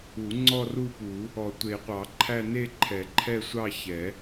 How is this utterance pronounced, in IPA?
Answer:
u˨˩˦ ŋ͡ǀɔ˥˧ru˥˧pu˨˩˦ | ɔ˨˩˦tʷe˨˩˦qʷɑ˨˩˦ǃʰæ˥˧ ne˥˧ǃʰɛ˨˩˦ ǃʰɛ˥˧sʷɑ˥˧çɛ˨˩˦

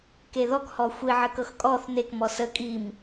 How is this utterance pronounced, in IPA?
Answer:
keðɔk hɔxʷi ʕəkɤxkʼɔθ nek mɔsə kʼim

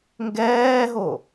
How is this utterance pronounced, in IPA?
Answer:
ŋɡɛːɦo

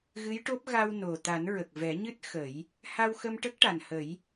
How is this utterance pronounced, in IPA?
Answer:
ɣɨ˧˥jʈo˦˥p̚ ɣa˧w no˨˩ t̪a˨˩˦nɹə˨˩k̚vɛ˨˩˦ɲɨ˦˥t̚ xə˨˩˦j | ha˧wxə˧mʈə˦˥k̚ ʈa˨˩nhə˨˩˦j

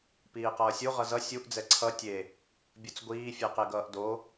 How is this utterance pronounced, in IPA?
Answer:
piːqʌːsʲu ʁʌzʌ sʲuʔ d͡zɛǀʰʌ tʲe | bʲut͡sɡʷiː fʲɛqeɡʌːʔdo

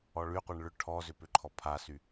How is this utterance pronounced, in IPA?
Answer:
ɔɭyqʷɛɳ ɭʏ ʈʰɔzʏ pʏǃʰɔpʰasy

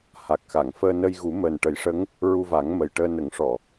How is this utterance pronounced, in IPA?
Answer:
ha˨˩k̚xa˨˩˨ŋ fəː˧nə˧jɣu˨˩˦ məː˨˩nʈə˨˩˦jʂə˧˥ŋ | ɹu˧va˨˩˦ŋ mə˨˩jʈəː˧ nə˨˩˦ŋʂɔ˨˩˨

